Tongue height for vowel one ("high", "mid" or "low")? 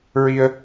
high